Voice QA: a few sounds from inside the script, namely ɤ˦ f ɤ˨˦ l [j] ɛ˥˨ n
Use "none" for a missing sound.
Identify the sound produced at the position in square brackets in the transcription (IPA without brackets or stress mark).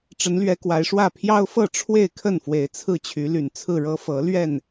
ɥ